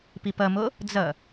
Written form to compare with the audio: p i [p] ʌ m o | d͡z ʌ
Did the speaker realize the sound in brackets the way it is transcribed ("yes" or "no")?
yes